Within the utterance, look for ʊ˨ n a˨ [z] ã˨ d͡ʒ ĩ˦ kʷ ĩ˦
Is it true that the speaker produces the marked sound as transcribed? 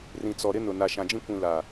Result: no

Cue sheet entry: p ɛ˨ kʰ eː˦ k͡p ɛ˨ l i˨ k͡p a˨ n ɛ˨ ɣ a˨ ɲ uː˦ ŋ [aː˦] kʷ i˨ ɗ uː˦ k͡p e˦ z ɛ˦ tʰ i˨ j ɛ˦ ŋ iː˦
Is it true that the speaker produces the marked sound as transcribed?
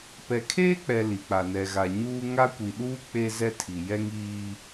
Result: no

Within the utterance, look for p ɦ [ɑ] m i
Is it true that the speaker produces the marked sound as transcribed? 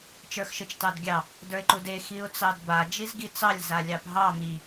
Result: yes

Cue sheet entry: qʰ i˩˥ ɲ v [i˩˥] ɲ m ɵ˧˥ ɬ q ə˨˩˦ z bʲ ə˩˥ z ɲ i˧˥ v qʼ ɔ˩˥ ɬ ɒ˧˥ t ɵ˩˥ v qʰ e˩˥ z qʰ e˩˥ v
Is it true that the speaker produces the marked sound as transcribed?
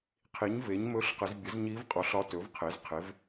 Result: no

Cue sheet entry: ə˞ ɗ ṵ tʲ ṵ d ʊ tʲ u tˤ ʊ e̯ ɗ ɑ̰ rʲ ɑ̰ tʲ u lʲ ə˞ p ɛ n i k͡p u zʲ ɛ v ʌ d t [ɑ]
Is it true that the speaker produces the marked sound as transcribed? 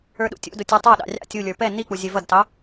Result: yes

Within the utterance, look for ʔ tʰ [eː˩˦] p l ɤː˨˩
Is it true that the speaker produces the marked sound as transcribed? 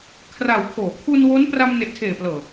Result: no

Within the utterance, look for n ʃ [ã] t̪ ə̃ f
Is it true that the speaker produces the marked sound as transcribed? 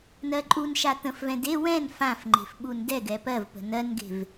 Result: no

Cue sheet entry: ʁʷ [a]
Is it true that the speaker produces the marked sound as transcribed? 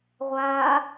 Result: no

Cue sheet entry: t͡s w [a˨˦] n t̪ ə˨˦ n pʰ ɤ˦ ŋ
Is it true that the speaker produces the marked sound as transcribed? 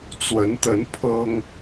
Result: no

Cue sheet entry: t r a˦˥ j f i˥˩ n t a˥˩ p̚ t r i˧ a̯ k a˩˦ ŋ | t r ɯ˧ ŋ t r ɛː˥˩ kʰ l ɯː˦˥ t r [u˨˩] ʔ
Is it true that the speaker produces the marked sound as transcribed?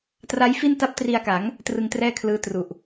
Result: yes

